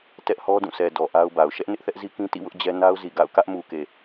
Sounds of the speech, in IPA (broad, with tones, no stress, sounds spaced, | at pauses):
t ɛ˦ ʔ h ɔ˦ d ũ˦˨ sʰ ɛ˨ d ɔ˨ ʔ a˦ ʊ̯ b a˨ ʊ̯ ʃ ɛ˦ ʔ n ɪ˦ ʔ θ ɛ˦ ʔ z i˦ k ĩ˦ t ḭ˦˨ w ʊ˦ ʔ d͡ʑ ɛ˦ n a˦ ʊ̯ z i˨ ɡ a̰˦˨ ʊ̯ k ä˦ ʔ m u˨ k e˨